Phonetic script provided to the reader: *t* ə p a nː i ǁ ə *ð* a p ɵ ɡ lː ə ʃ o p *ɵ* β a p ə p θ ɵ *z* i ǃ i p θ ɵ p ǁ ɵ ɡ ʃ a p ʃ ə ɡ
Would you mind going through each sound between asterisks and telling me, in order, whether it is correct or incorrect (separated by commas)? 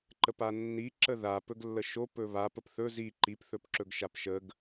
incorrect, correct, correct, correct